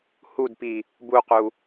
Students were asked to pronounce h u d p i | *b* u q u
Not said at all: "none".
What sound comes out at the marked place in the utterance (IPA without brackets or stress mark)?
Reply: b